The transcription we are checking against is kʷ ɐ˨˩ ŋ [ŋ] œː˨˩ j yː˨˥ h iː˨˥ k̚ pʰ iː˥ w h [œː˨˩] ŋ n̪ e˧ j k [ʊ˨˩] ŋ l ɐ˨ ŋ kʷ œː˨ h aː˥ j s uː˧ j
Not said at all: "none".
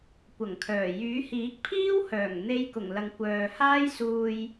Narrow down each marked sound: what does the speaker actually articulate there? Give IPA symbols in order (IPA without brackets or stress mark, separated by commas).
kʰ, œː˨˩, ʊ˨˩